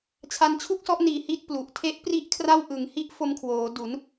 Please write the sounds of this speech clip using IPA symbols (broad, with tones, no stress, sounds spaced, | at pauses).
t͡ɕʰ a˧ n t͡ɕʰ u˥˩ k̚ s ɔ˦˥ ʔ n iː˨˩ h i˥˩ t̚ p l u˨˩ ʔ tʰ e˦˥ ʔ p r i˥˩ ʔ kʰ r a˥˩ w ʔ ɯ˨˩ ŋ h i˥˩ ʔ f o˧ m kʰ w oː˩˦ d u˩˦ n